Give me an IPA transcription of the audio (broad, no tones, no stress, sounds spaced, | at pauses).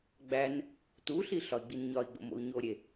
ɡ͡b æ n | t u ɬ i ɬ ɒ i̯ ɡ͡b i n ɲ ɒ i̯ ɡ͡b o̰ m o̰ u̯ ɲ o ɾʲ e